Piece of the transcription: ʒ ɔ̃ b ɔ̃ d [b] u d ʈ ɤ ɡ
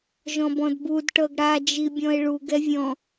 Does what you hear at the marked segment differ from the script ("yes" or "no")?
no